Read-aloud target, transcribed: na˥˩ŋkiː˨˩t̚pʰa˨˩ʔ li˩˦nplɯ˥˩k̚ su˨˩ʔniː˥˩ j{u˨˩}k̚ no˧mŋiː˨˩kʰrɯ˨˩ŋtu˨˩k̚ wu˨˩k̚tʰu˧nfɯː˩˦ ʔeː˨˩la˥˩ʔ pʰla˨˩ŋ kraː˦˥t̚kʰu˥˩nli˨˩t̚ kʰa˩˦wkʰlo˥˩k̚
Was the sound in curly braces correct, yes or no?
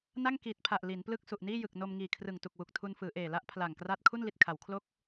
no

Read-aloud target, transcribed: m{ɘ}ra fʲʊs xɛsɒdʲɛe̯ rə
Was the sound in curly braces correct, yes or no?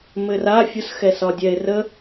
yes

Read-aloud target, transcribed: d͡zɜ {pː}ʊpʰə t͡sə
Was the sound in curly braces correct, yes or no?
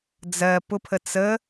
no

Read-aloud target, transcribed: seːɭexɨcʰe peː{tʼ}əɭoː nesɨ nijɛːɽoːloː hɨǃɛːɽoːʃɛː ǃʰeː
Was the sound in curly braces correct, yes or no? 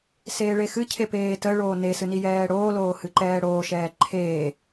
no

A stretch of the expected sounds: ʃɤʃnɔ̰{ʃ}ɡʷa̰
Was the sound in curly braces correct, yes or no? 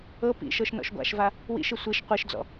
yes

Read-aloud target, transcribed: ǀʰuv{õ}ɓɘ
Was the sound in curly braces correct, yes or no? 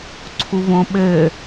yes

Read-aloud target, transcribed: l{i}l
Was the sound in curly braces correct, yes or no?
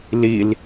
yes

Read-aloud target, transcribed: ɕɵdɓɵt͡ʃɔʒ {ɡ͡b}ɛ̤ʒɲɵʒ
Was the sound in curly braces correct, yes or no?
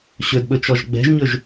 yes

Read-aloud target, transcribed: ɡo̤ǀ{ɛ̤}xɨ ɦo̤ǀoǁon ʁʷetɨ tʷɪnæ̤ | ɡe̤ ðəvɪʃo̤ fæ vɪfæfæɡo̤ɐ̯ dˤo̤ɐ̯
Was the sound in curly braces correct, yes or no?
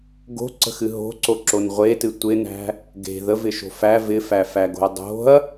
no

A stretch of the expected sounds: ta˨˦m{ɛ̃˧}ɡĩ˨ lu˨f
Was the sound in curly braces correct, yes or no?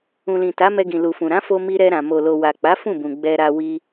no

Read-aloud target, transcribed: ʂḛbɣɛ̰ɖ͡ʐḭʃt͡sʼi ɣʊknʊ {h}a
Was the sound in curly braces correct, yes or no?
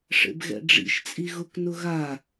no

